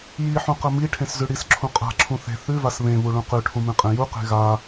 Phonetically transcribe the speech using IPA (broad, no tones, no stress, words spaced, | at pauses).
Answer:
jiħũqɐ miʈʰẽszʉ ɽisǁʰũ qʼa̤ǁʰũ θe̤ θʉvas βẽβuɭũ qʉʈʰũmẽqʼẽ juqe̤ ɣa